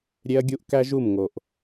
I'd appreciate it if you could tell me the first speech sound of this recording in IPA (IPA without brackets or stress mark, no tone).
ɾʲ